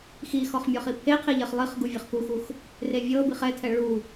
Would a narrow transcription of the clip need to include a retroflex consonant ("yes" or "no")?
yes